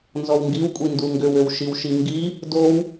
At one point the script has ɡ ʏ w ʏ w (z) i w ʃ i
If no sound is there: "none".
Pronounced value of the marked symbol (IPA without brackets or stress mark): ʃ